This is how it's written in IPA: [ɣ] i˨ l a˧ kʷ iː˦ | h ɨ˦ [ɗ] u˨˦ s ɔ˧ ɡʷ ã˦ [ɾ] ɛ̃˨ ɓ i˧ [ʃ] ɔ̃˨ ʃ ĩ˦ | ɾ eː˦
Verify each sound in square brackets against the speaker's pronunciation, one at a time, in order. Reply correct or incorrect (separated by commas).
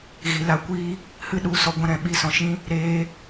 correct, correct, correct, incorrect